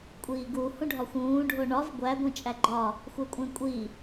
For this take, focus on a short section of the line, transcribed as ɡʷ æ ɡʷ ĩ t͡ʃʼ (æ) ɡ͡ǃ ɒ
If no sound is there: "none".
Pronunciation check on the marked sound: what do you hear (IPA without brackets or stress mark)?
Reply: æ